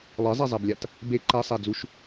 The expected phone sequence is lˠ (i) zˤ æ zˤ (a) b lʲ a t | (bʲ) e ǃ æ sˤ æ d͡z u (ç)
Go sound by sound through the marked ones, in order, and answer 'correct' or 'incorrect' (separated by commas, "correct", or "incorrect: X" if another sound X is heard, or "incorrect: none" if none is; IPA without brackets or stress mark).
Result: incorrect: e, incorrect: æ, incorrect: b, incorrect: ʃ